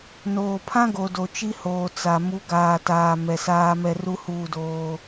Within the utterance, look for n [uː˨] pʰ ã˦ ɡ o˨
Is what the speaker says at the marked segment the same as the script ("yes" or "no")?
no